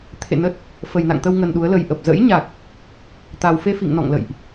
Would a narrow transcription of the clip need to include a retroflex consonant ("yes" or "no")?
no